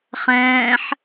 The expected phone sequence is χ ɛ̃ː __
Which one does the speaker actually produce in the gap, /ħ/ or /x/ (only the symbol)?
ħ